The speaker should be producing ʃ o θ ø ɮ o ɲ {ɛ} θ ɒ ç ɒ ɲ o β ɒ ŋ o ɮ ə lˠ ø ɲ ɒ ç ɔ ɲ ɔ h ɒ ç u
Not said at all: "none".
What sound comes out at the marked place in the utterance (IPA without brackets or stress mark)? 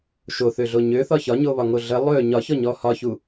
ø